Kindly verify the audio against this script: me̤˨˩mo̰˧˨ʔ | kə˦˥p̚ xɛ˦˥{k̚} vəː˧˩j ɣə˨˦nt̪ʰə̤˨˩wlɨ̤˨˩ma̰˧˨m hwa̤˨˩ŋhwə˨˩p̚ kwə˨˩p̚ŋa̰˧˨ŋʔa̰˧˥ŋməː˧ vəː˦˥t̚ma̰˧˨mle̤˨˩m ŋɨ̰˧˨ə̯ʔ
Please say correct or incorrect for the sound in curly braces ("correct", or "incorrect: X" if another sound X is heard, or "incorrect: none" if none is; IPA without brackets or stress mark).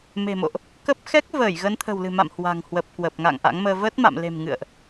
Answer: correct